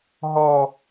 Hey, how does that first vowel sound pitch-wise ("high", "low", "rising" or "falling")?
high